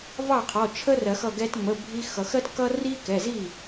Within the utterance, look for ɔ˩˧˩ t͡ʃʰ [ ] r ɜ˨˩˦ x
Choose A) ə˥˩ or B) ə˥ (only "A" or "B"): B